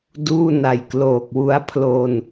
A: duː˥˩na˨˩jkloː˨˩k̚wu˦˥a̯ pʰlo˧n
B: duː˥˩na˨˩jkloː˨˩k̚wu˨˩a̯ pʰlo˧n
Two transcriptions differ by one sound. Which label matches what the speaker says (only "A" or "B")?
A